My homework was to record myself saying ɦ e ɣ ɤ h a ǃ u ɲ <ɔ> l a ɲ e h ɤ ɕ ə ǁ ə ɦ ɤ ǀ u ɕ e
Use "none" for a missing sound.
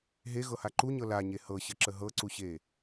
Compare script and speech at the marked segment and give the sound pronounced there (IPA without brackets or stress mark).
ɤ